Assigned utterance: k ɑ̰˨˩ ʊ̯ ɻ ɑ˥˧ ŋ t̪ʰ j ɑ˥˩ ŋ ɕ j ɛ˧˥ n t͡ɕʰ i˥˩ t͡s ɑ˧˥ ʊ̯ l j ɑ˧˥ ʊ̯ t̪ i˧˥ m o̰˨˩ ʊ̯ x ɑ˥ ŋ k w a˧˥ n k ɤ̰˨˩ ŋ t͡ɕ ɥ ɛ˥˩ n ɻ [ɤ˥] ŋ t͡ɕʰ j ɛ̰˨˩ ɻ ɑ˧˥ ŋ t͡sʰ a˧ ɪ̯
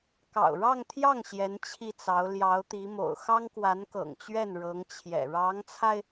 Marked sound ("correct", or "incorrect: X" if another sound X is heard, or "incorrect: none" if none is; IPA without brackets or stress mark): incorrect: ɤ˧˥